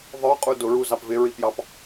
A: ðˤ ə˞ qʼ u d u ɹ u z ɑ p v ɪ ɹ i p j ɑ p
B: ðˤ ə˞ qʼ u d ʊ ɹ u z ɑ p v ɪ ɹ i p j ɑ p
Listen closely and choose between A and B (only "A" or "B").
B